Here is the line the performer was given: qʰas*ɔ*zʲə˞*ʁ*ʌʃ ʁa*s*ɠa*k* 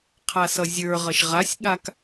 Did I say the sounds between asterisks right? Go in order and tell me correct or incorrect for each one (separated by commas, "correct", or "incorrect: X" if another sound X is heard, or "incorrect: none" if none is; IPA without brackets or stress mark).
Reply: incorrect: ʌ, correct, incorrect: sʲ, correct